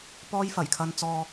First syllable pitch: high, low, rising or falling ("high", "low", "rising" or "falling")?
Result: high